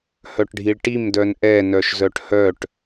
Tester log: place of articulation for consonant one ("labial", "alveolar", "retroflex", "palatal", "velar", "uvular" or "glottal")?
glottal